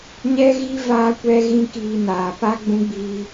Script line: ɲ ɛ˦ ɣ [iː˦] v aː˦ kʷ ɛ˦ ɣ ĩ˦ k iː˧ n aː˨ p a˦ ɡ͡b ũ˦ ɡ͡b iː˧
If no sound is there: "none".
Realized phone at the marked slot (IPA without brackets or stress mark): i˦